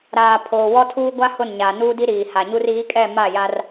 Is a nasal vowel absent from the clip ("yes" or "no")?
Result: yes